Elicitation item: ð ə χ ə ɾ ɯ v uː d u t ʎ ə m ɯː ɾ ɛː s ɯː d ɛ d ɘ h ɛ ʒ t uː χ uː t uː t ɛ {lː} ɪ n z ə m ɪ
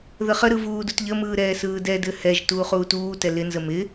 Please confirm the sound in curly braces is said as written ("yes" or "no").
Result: no